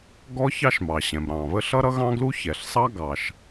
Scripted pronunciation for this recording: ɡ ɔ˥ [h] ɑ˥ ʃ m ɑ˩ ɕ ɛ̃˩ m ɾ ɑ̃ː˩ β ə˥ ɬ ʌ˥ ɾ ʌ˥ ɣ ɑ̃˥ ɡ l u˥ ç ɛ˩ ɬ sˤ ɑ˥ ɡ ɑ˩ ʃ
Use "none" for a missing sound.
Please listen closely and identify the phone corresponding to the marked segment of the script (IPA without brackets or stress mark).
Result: ç